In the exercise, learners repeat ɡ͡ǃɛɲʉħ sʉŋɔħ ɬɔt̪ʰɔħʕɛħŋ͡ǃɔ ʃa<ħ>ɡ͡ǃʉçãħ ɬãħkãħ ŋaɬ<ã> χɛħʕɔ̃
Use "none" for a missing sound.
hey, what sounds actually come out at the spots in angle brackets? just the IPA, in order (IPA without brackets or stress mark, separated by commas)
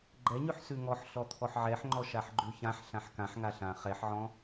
ħ, ã